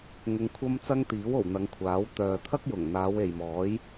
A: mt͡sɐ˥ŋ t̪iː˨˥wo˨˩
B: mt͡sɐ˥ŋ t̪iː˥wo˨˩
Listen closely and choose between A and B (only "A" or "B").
A